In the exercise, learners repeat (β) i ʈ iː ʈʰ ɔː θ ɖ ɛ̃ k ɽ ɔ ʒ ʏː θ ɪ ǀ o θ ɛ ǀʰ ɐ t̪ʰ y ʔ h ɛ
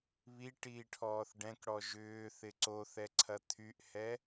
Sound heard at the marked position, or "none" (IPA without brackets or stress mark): β